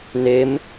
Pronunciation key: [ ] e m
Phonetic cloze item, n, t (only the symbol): n